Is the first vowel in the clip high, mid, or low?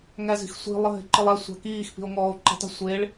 low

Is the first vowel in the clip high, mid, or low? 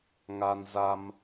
low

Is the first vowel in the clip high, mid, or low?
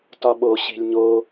low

